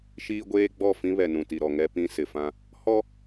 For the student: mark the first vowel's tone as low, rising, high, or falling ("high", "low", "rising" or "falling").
high